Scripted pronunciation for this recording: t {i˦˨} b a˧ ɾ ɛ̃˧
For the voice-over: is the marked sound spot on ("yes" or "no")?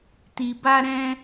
no